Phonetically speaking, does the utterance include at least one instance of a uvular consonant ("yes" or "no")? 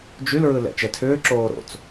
no